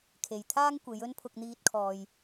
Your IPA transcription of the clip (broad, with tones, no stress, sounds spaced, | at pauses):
kʰ e˨ j t̪ʰ aː˥ ŋ kʷ e˨˧ j ɵ˥ n pʰ ʊ˧ k̚ n̪ iː˧ t̚ kʰ ɔː˨ j